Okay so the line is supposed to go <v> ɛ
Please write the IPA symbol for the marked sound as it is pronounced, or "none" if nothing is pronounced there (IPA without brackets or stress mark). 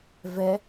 v